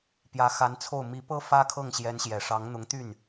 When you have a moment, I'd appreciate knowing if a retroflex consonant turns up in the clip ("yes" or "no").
yes